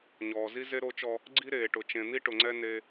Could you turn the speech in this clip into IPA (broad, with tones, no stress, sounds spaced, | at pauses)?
ɲ ɔː˨ z i˦ z e˦ ɾ o˦ t͡ʃ ɔ˦ | ɡ͡ǀ i˦ ɾ eː˨ ʈ ʊ˨ t͡ʃ ẽ˨ n̪ i˦ ʈ ʊ˨ ŋ͡ǀ ɛ˦ n e˦